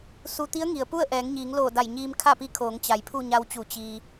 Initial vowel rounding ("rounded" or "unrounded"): rounded